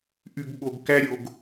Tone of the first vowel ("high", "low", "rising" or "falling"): low